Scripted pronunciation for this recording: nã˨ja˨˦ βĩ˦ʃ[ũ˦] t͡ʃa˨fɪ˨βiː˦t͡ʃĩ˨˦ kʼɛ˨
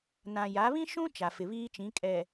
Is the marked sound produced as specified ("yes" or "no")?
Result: yes